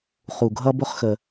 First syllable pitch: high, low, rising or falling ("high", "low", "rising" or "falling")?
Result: low